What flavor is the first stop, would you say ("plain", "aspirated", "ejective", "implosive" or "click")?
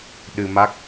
implosive